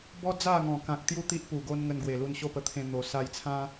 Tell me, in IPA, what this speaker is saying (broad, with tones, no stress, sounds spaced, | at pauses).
b ɔ˦ d͡z a˥˧ ŋ ɔ̃˨˩ k ã˨ k̚ t̪ j u˥˧ t̪ i˦ ʔ p u˨˩ ɡ o˦ n ŋ ə˧ n ɡ w e˨˩ l u˧ n ɕ o˥˧ p ə˧ t̪ʰ ẽ˧ n̪ o˨˩ s a˧ j t͡sʰ ã˦